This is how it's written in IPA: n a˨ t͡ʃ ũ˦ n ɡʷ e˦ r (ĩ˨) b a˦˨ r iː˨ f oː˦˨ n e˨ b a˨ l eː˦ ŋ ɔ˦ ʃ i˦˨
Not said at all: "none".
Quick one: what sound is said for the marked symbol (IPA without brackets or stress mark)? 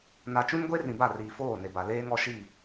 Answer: ĩ˨